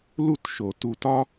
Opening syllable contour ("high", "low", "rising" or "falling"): high